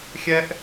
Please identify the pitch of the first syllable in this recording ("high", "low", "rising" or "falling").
high